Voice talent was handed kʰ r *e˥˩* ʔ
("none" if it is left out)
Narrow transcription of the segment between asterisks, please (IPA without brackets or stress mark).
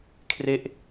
e˥˩